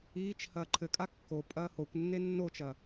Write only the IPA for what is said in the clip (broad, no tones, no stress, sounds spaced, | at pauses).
iː t͡ʃ h ɐː ǃʰ ɘ kʼ a kː o pʼ ɐː h o kʷ nː e nː o t͡ʃ ɐ